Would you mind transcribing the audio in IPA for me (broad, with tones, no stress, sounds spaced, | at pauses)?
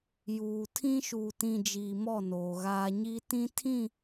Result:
j uː˨ tʰ ĩ˦ ʃ uː˨ t ĩ˨ d͡ʒ iː˨ m ɔ˦˨ n oː˨ ɣ aː˦ ɲ i˦ t ĩ˦ tʰ ĩ˦˨